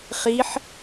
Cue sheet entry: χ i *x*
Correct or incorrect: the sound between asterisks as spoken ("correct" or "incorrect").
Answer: incorrect